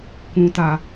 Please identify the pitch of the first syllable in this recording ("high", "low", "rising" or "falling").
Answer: low